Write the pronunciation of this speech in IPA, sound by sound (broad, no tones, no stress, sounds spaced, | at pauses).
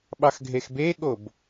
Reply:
ɓ ɑ x ɡʱ e x b e ɠ o b